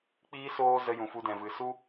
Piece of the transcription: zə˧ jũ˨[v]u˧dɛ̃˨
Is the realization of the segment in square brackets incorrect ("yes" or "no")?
yes